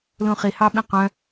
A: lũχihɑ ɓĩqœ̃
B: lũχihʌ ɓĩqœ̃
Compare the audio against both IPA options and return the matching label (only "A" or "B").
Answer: A